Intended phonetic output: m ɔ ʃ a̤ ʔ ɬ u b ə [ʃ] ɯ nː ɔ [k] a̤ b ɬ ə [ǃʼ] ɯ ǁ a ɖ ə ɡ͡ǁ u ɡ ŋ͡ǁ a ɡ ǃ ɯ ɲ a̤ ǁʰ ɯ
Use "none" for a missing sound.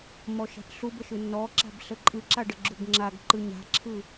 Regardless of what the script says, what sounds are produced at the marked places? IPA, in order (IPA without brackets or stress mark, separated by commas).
ʃ, ǁ, ǃʼ